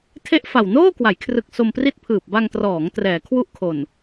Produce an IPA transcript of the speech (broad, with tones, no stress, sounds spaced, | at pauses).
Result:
tʰ e˥˩ ʔ f a˨˩ w n oː˥˩ k w a˩˦ j kʰ r ɯ˨˩ k̚ s o˧ m p r i˥˩ t̚ pʰ ɯː˨˩ p̚ b a˧ ŋ t r ɔː˩˦ ŋ t r ɛː˩˦ kʰ w u˥˩ ʔ kʰ o˨˩ n